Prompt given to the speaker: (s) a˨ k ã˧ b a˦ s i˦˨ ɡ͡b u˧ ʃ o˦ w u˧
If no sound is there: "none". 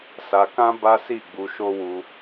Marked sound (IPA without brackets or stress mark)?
s